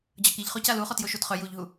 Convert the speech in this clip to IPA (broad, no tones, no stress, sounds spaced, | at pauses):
d͡ʑ ʌ k i ʎ χ o c a l u χ ɔ t j o ʃ u d χ œ j u ʎ ɦ u